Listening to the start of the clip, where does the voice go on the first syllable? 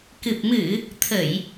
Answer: low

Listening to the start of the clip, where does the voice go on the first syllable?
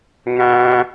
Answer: high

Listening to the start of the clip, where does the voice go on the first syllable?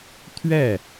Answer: falling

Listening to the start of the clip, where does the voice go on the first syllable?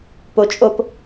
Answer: low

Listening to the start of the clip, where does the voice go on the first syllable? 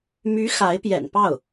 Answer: rising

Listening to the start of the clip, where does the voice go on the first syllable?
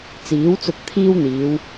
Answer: rising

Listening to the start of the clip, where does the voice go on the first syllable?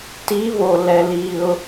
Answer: rising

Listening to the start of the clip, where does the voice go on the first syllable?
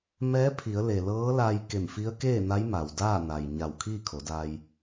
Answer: rising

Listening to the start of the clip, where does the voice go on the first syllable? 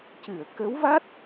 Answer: low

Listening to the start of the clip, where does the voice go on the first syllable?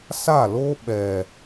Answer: falling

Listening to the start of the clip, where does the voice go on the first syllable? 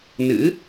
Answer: rising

